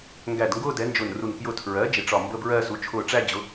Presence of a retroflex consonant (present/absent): present